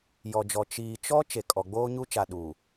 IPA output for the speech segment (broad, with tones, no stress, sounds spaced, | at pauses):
j ɔ˨ d͡ʒ ɔ˨ t͡ʃ iː˨ t͡ʃ ɔ˦ t͡ʃ e˨ kʼ ɔ˨ ɡ͡b oː˦ ɲ u˦ t͡ʃ a˨ ɗ uː˨